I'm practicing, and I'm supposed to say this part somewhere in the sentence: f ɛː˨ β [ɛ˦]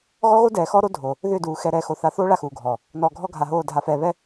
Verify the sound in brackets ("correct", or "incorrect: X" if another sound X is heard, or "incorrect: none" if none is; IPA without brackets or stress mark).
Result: correct